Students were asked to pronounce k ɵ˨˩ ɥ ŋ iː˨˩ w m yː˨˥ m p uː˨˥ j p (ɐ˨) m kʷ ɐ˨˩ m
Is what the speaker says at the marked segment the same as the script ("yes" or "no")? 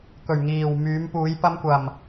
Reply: no